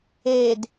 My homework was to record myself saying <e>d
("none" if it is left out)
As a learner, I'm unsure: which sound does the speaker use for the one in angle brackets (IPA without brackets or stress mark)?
e